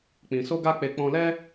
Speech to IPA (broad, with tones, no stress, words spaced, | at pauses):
k͡pĩ˧ so˦ɡa˦k͡pe˧ k͡pɔ̃˧lɛ˦